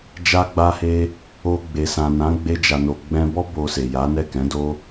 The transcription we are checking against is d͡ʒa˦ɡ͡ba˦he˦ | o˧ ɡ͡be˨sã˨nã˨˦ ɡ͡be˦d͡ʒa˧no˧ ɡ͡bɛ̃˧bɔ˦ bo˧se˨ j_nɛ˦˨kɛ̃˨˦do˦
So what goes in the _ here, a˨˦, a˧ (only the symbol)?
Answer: a˨˦